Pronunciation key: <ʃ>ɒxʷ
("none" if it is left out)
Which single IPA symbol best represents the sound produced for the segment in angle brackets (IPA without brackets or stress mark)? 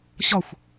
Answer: ɕ